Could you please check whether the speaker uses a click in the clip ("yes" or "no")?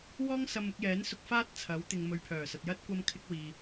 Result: no